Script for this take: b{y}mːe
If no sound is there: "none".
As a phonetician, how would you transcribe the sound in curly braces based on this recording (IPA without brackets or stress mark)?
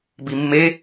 i